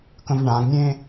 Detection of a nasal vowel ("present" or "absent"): present